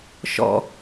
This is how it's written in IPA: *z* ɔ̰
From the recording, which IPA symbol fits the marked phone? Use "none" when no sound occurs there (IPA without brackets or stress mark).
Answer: ʃ